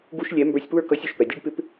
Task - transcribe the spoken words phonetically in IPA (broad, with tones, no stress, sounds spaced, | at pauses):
ɡ u˧ ʃ lʲ ɛ˨˦ m b ə˞˧ sʲ p w ə˞˦˨ k ʌ˨˦ sʲ u˨ ʃ p ɛ˨ dʲ u˦ ɖ p ɪ˦ p